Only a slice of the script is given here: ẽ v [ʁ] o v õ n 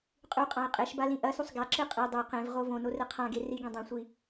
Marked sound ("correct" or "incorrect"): correct